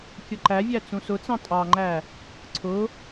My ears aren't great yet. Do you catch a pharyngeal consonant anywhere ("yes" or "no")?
no